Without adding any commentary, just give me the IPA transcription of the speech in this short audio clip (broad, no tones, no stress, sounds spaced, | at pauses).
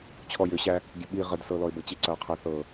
t͡ɕʰ ɔ j ʏ ɕ æ | ɡʲ ə ɓ i ʁ ə d s ɤ l ɔ ɪ̯ b ɤ t͡ɕ i ǀ ɐ ʊ̯ qʰ æ θ ɤ